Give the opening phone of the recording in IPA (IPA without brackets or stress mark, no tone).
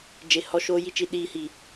d͡ʒ